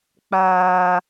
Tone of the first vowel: high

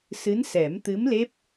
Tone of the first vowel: rising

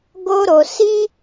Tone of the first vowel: high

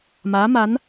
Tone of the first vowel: rising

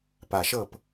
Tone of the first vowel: low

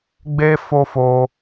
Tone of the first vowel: high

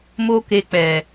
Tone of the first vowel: high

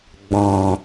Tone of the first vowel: low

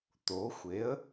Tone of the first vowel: rising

